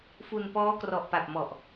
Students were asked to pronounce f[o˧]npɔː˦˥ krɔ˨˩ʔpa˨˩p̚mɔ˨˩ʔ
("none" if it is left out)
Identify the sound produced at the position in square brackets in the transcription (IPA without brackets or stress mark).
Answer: u˧